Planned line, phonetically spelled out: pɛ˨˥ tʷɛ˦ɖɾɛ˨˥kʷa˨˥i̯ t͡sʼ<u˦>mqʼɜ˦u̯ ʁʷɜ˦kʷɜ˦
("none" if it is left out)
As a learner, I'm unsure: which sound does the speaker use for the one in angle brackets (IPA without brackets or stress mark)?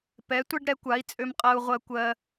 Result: ø˦